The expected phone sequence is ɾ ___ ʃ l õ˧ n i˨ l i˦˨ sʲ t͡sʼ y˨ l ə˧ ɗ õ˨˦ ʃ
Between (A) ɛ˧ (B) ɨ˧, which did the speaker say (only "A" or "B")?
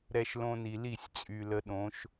A